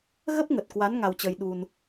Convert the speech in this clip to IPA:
ɣə˦˥p̚ŋə˨˩t̚kwa˨˦n ŋa˧wt͡ɕəː˧jɗu˧n

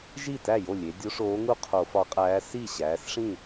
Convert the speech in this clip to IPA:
ʒi˥˩tæ˥˩jo˥˩lʲe˩˧ dʲo˧˥ʂoː˧˥ŋu˥˩ qʰo˧˩˧fɒ˧˥qʼæː˧˥ si˥˩ɕæː˩˧sʂĩ˥˩

